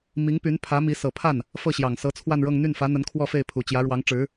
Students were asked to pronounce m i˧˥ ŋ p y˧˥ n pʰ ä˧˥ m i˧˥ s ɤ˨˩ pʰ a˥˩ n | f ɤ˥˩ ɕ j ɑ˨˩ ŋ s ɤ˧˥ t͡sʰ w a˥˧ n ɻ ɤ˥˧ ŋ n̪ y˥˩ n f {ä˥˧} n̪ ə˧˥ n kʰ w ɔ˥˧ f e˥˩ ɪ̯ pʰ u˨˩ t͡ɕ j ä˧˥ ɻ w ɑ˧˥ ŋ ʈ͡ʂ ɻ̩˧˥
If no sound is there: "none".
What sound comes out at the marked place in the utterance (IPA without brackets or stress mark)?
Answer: ä˧˥